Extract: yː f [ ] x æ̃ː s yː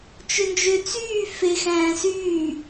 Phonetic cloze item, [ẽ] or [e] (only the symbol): e